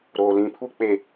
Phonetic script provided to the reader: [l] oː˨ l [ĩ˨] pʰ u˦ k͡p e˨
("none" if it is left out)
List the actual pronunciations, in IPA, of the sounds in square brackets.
ɾ, ĩ˨

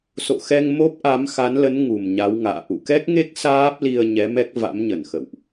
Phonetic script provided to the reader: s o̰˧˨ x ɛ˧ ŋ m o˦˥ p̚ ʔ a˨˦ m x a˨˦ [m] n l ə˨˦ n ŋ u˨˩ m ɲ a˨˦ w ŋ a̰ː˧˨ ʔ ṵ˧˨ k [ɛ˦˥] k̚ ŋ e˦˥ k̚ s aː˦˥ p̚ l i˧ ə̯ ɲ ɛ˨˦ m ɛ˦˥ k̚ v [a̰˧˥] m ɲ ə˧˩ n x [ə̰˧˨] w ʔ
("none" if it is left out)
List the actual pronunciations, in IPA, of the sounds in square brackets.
none, ɛ˦˥, a̰˧˥, ə̰˧˨

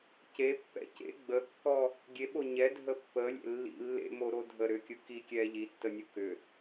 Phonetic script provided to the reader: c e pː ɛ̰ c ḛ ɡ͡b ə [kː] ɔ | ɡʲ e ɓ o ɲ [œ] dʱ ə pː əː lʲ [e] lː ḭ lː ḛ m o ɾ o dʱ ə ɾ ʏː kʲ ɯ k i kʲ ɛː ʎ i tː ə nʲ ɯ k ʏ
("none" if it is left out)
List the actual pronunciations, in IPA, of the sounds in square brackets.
kː, ɛ, ḛ

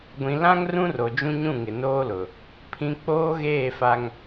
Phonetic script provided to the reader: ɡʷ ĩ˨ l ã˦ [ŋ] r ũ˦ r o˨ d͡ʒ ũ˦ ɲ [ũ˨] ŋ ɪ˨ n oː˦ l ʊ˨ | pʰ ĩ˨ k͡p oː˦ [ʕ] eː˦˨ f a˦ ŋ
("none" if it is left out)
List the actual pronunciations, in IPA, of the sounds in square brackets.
ŋ, ũ˦˨, ɣ

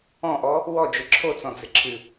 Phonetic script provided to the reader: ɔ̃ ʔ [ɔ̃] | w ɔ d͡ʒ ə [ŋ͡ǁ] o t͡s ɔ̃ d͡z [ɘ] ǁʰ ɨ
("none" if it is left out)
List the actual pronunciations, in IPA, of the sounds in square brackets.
ɔ, ǁʰ, ɘ

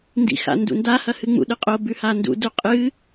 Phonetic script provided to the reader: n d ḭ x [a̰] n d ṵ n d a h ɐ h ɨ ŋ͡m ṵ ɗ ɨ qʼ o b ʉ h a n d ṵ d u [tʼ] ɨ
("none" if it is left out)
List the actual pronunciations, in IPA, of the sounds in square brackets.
a̰, qʼ

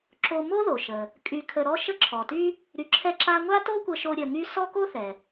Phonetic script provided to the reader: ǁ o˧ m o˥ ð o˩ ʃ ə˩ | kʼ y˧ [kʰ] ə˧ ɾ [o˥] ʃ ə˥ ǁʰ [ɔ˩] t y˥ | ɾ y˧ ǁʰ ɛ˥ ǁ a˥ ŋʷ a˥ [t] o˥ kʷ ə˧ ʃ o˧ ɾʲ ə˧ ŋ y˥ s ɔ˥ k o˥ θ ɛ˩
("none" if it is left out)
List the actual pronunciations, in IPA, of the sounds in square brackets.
kʰ, ɔ˥, ɔ˩, t

